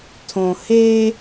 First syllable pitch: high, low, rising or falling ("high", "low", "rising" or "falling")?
low